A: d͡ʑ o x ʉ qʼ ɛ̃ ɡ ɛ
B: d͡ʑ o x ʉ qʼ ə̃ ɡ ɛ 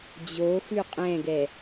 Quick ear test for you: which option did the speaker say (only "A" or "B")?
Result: A